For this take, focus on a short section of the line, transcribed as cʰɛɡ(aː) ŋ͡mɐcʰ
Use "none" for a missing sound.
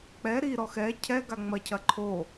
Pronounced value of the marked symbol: a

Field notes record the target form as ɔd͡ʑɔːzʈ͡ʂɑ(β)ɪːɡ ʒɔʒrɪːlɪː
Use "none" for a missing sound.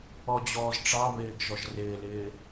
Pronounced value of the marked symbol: β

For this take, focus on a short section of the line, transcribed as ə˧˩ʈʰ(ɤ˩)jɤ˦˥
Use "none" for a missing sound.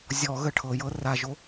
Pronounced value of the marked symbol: ɤ˩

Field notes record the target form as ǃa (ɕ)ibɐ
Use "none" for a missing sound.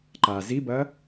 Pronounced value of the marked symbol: z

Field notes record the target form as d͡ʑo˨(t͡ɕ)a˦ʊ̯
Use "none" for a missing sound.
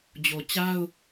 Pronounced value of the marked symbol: t͡ɕ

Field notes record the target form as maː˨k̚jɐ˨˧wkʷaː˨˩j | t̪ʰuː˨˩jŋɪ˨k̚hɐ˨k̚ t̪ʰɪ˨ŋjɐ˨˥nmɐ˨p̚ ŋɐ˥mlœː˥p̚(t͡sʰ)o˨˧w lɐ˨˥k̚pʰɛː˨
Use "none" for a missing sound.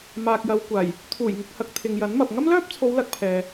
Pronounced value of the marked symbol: t͡sʰ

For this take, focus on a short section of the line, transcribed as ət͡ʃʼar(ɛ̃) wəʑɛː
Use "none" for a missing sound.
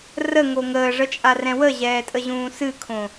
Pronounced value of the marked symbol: ɛ̃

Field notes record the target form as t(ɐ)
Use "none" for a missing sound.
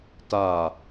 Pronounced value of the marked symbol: a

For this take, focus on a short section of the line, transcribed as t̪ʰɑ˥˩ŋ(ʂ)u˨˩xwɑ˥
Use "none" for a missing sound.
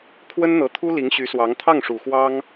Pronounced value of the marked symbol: ʂ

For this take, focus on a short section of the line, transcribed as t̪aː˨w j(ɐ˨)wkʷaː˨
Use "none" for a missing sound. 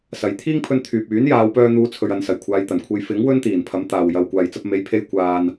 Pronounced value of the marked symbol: ɐ˨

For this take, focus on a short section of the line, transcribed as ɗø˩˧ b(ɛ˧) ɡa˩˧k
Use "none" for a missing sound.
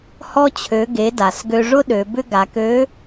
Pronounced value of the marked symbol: ʏ˧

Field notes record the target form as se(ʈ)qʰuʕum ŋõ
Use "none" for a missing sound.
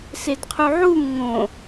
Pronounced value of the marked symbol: d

